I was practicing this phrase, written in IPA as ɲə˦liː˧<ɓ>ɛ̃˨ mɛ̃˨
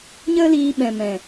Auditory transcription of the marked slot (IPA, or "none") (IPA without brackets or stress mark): ɓ